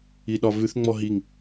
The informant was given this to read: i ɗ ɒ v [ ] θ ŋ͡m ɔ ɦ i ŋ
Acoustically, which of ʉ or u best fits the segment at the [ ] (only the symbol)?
ʉ